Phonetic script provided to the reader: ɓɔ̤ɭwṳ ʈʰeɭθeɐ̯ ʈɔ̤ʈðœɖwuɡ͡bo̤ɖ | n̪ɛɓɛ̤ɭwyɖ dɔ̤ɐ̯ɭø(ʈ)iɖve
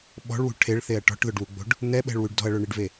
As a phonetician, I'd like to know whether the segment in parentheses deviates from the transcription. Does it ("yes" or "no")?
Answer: yes